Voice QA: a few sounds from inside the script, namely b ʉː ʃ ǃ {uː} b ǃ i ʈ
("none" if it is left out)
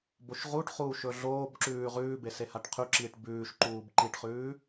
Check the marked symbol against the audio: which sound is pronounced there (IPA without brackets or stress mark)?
uː